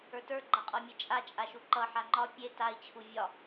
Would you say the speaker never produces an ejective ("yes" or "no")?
no